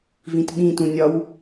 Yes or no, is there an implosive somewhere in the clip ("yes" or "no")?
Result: yes